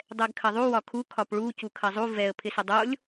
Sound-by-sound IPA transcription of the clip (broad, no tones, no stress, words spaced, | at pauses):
dˤɛɡkʰɐðˤu wɒkʰu kʰɒpɭu cukʰɐzˤu vɛə̯ pʰɪsɪdˤolʲ